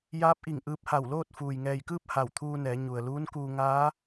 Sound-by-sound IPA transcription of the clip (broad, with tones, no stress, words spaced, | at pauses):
jaː˧˥p̚ʔi˧˩ŋ ʔɯː˧p̚ha˧˩wloː˥˨t̚ fuː˩jŋɛː˧˩jkɯː˥˨p̚ ha˧˩wt̪ʰuː˧nɛː˩˧ ɲu˩ə̯luː˧˥nkuː˧ ŋaː˧˥